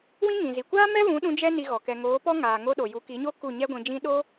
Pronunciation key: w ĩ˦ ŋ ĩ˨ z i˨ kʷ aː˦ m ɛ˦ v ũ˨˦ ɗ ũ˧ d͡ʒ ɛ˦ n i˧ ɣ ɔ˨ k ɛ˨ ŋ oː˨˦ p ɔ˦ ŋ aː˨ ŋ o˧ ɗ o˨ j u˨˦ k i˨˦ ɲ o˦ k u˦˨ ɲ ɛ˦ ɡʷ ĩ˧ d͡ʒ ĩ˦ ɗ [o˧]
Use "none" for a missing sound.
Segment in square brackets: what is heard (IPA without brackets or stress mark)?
o˦